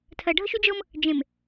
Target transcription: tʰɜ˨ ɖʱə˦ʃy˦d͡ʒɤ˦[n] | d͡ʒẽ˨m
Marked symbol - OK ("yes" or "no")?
no